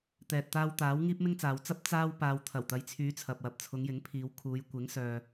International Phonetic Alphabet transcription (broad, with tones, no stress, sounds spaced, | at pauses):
t̪ ɛː˨ t̚ t̪ aː˧ w t̪ aː˨˥ w ŋ iː˥ p̚ m ɪ˥ ŋ t͡s aː˨˧ w t͡s ɐ˥ p̚ t͡s aː˥ w p aː˧ w t̪ʰ ɐ˨˩ w t̪ ɐ˨˧ j t͡sʰ yː˨˧ t͡sʰ ɐ˨ p̚ w ɐ˨ p̚ t͡sʰ ʊ˨˧ ŋ j ɪ˨˥ ŋ pʰ iː˨˧ w kʰ uː˨˧ j kʷ ɪ˨˥ ŋ s œː˧